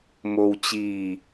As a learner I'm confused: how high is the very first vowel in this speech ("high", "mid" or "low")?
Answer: mid